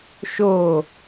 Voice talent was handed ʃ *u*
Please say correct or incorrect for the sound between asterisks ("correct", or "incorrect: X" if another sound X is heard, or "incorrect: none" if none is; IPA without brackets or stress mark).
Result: incorrect: o